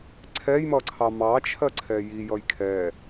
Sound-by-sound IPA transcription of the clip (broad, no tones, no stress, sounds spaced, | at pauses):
ǀʰ ɛ j m ʌ ǀʰ ɑ m ɑ t͡ʃʰ ɜ ǀʰ ɛ j i j ʌ j kʰ ɛ